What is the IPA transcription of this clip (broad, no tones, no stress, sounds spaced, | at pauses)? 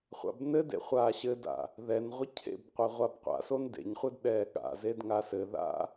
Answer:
χʷ a̰ b n ɘ d ḛ χʷ aː ɕ ɘ d a̰ | ð ɛ n ʁʷ ɘ cʰ ḛ b qʷ e ʁʷ a b qʷ a̰ s o n d ḛ ɲ χʷ ɘ d ɗ ɛː ɠ a̰ z e d ŋ a s ɘ ð a̰